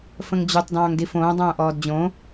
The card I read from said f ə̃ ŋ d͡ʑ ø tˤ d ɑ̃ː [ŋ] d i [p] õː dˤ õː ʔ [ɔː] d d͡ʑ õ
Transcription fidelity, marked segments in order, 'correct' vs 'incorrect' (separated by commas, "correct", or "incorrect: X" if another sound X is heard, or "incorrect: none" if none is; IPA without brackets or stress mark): correct, incorrect: f, correct